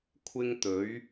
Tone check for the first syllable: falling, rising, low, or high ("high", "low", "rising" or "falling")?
high